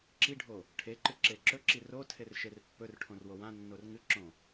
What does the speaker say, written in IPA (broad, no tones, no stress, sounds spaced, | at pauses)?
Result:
ǁ i ɖʱ o | ʈʰ e ǃ ɨ ǁ e ǁ ɵ ǁ i r o tʰ e r ʃ e r pː ɵ r ʈʰ õ r w o w ã nː o r ŋ ɨ ǁ õ